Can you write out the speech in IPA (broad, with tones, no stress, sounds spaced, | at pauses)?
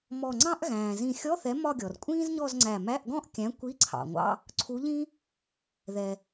m ɔ˧˩ ŋ͡ǀ ɑ̃˥ ʔ ɣ æ̃ː˩ z ĩ˧˩ xʲ ɔ˧˥˧ θ ɛ˨˥ m ɒ˥˧ ɡʲ ɔ˩ r kʷʼ ĩː˥ z ɲ ɔ˥˧ z ŋ͡ǀ æ˧˩ m æ˧˥˧ ʔ ɡ ɔ̃˥˧ ʔ kʲ æ̃˨˥ kʷ i˧˥˧ ǀʰ ɑ̰˩ ŋʷ ɑ̰˧˥˧ | ǀʰ u˨˥ ʎ ĩ˥ | ð ɛ˩